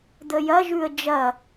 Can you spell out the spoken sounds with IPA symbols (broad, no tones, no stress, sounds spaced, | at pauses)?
d̪ ə j ɐ ʒ ʉ ə̯ d͡ʒ ɐ